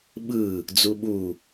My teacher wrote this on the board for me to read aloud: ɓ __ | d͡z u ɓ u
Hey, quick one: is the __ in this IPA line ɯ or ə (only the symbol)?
ɯ